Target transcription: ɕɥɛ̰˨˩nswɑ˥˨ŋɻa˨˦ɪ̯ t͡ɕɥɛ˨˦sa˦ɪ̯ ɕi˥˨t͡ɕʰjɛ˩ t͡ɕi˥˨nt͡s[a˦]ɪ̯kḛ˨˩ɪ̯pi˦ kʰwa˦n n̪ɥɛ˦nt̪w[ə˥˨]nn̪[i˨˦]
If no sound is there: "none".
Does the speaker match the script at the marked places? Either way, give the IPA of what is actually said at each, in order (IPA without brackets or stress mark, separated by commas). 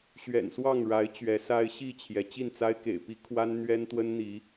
a˦, ə˦, i˨˦